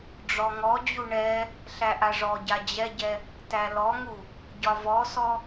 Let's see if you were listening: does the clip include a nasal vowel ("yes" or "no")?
no